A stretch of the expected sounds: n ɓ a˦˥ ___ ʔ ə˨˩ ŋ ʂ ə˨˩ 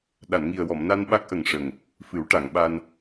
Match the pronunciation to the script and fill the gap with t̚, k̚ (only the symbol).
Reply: k̚